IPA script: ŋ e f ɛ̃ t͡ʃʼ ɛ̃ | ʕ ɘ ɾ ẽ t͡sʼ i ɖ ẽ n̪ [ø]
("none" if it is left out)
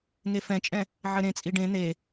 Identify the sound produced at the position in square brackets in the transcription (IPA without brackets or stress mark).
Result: e